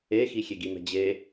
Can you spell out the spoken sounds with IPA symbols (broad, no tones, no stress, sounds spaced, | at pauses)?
e x i xʲ e ɡ i m ɛ̤ d͡ʑ e